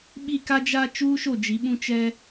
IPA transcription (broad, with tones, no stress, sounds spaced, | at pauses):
ɓ i˦˨ k a˦ d͡ʒ a˦ t͡ʃ uː˦ ʃ o˦˨ d͡ʒ i˨˦ ɓ ũ˦ t͡ʃ ɛ˦